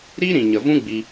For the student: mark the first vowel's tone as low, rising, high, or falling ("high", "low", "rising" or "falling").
high